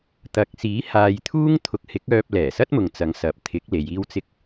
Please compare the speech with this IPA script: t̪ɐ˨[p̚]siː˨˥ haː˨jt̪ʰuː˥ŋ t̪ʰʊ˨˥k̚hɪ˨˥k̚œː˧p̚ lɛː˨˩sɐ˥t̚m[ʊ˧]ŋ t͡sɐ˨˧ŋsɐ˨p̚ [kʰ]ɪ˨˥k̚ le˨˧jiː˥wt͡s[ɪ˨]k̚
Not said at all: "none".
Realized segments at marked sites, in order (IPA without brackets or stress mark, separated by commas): k̚, ʊ˨, t̪ʰ, ɪ˥